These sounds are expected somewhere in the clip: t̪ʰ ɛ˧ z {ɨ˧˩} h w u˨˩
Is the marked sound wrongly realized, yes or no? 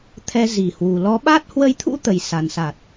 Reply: yes